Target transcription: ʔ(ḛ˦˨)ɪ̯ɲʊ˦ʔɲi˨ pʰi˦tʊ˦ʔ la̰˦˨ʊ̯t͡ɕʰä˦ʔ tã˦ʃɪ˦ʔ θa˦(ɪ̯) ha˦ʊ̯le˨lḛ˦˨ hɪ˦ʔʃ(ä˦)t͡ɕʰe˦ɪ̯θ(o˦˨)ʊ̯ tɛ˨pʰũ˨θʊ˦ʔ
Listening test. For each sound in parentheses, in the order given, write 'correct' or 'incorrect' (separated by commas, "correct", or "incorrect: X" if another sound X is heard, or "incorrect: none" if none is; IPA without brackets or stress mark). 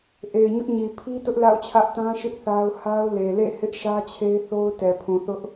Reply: incorrect: e˨, incorrect: ʊ̯, correct, incorrect: o˦